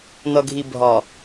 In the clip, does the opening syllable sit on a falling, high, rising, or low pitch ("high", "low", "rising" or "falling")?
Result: low